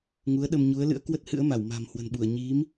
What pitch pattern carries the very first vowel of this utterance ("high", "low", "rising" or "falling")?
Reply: rising